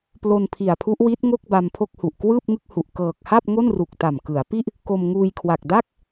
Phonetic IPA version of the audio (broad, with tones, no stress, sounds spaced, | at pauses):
p l o˧ n pʰ i˨˩ a̯ pʰ u˦˥ ʔ w i˦˥ t̚ ŋ o˥˩ k̚ b a˧ m pʰ o˥˩ k̚ h u˨˩ ʔ k w ɯː˥˩ p̚ ŋ ɯ˥˩ k̚ h u˨˩ ʔ k ɤː˨˩ k̚ h a˥˩ p̚ ŋ o˥˩ n r u˨˩ k̚ t a˨˩ m k ɯ˩˦ a̯ p i˥˩ ʔ | k o˧ m ŋ uː˧ j kʰ w a˨˩ k̚ d a˥˩ k̚